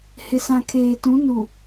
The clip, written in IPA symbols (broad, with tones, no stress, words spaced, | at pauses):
hɪ˨sã˨ kʰeː˨tũ˨˦ nu˨